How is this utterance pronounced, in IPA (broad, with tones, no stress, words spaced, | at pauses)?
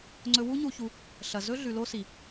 ŋ͡ǀɵ˦ wu˦ɲu˧çu˧ | ɬɐ˨zɵ˦ ɮʉ˨lo˧si˨